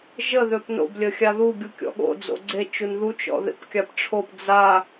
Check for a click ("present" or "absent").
present